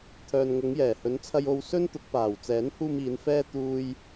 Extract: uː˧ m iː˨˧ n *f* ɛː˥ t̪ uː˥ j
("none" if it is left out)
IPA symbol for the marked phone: f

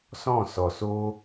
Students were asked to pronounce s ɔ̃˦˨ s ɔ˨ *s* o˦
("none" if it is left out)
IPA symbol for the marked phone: s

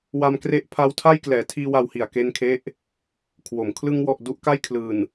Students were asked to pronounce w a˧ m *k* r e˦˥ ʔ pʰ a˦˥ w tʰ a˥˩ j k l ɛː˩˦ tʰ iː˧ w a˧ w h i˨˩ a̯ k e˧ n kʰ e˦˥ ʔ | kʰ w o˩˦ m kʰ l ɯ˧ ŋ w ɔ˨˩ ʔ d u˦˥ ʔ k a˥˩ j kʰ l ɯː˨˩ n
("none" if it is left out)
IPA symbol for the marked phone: k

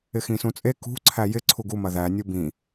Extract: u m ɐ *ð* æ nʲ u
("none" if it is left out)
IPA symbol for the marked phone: ð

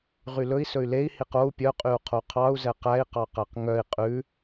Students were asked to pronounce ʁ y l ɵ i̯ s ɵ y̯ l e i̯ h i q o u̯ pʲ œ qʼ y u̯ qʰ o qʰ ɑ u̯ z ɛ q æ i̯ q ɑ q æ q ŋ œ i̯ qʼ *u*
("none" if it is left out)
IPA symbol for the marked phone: ʉ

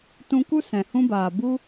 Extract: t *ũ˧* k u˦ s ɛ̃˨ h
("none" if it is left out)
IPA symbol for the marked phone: ũ˧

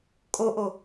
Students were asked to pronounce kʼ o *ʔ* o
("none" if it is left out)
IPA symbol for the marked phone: ʔ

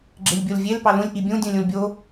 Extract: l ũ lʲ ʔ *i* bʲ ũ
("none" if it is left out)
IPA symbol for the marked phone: i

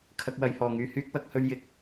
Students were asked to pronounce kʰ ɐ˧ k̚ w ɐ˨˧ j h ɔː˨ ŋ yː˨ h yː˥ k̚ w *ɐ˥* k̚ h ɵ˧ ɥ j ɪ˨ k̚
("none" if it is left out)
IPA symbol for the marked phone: ɐ˨˥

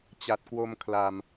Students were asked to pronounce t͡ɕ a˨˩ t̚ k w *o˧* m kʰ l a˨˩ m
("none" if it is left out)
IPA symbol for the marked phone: o˧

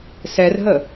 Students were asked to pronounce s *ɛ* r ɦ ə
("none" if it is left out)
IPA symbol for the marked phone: ɛ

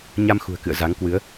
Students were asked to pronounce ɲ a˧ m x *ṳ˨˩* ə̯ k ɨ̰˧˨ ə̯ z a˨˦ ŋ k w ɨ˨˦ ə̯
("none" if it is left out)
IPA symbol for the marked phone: ṳ˨˩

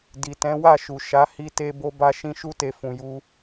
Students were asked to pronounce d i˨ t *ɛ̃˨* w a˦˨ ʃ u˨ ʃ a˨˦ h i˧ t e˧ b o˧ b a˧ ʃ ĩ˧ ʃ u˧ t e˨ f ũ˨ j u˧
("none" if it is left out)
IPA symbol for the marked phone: ɛ̃˨˦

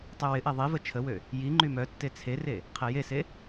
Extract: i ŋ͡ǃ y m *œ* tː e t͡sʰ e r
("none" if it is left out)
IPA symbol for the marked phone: œ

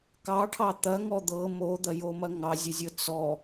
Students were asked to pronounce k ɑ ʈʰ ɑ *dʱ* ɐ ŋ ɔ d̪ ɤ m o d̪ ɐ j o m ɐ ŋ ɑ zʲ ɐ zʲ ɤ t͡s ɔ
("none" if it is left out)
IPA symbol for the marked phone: t̪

